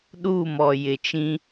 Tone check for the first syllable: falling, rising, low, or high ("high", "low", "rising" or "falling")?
falling